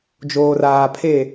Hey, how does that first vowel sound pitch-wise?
low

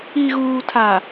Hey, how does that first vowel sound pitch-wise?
low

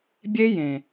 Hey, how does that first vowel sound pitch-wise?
high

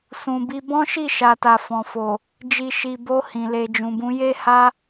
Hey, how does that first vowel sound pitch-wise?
low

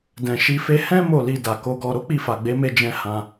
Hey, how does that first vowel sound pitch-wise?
low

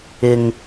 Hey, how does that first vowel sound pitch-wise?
low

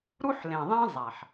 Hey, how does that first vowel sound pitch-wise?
high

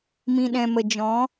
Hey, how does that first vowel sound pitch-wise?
low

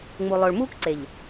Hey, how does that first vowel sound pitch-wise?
low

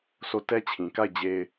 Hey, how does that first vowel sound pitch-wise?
falling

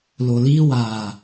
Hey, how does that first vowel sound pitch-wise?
low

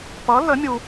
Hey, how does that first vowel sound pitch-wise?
rising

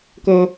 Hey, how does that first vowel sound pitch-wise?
high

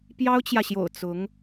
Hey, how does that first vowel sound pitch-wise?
high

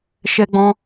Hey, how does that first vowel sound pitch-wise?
high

